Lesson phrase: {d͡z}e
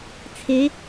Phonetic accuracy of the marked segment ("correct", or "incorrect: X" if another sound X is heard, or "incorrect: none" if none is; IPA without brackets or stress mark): incorrect: t͡sʰ